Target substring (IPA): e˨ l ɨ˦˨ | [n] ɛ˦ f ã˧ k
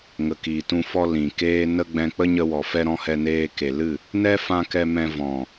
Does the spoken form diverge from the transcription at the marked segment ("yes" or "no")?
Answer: no